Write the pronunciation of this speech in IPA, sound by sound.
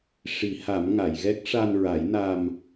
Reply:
ʂ i˨˩˦ h a˨˩˦ m ŋ a˨˩˨ j ɣ ɛ˦˥ k̚ ʂ a˧ n ɹ a˨˩˦ j n a˧ m

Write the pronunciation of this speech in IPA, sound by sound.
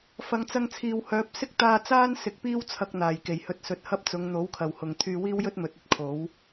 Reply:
f ɐ˨ ŋ t͡s ɐ˧ ŋ t͡sʰ iː˨ w h œː˨˥ p̚ s ɪ˥ k̚ t̪ aː˧ t͡s aː˥ n s ɪ˨˥ k̚ p iː˥ w t͡sʰ ɐ˧ k̚ n̪ aː˨˩ j k e˨˩ j h ɵ˧ t̚ s ɵ˨ t̚ h ɐ˥ p̚ t͡s ʊ˨˧ ŋ n̪ o˨˥ w kʰ ɐ˨ w h ʊ˨ ŋ t̪ʰ yː˧ w iː˥ w j ɵ˥ t̚ m ɵ˨ t̚ ɵ˥ t̚ kʰ o˨˥ w

